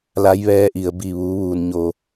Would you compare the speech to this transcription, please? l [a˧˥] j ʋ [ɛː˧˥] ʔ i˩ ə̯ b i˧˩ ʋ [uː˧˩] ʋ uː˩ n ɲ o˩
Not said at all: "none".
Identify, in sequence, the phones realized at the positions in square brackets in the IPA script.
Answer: a˧˥, ɛː˧˥, uː˩˧

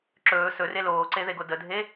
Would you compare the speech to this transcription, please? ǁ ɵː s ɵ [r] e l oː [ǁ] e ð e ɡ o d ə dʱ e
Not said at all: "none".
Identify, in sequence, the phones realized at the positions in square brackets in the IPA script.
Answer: r, ǀ

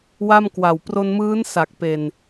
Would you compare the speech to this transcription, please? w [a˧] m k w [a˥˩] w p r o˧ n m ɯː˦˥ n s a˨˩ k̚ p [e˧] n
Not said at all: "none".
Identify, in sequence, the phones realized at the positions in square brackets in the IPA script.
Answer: a˥˩, a˨˩, e˨˩

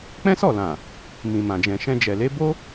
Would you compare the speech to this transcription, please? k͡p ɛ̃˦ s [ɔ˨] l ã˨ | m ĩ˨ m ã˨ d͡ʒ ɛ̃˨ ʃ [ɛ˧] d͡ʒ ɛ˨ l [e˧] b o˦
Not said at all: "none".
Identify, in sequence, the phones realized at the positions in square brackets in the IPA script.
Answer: ɔ˦˨, ɛ̃˧, e˨˦

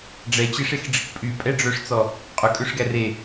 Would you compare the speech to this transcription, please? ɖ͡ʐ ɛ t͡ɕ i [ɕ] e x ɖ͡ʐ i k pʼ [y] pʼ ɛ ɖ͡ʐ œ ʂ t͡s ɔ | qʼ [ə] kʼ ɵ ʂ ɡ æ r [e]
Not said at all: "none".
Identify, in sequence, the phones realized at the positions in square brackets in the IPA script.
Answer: ʂ, y, ɵ, e

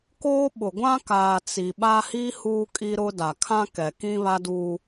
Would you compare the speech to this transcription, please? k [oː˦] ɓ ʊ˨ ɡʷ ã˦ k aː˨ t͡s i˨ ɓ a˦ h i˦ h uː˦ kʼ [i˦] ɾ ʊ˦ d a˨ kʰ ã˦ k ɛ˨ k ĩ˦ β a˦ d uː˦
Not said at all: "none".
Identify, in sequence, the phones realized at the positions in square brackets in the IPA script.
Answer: oː˦, i˦

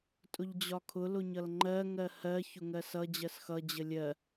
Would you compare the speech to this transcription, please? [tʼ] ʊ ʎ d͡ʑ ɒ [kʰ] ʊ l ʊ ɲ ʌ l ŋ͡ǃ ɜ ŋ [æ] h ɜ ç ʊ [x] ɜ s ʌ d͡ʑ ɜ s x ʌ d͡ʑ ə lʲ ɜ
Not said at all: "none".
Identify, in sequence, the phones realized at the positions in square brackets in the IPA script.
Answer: tʼ, kʰ, ɜ, ŋ

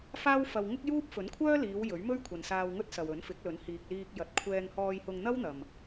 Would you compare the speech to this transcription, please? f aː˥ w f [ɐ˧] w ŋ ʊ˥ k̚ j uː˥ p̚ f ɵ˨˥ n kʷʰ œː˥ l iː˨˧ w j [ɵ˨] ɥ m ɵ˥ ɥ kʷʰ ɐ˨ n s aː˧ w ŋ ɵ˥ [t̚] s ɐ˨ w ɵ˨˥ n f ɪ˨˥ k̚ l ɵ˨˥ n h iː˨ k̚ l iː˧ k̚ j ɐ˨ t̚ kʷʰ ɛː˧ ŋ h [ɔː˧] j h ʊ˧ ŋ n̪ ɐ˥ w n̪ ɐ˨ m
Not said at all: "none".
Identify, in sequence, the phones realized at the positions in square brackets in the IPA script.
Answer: ɐ˧, ɵ˨˥, t̚, ɔː˧

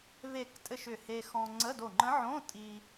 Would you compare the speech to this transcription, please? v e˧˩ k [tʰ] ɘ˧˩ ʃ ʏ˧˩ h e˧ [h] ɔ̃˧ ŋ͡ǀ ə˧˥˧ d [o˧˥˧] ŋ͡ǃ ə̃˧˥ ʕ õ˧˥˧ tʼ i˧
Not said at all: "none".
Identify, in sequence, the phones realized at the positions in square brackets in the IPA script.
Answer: tʼ, x, o˧˩

